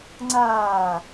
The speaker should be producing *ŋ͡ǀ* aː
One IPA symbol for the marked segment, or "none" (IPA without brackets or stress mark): ŋ͡ǀ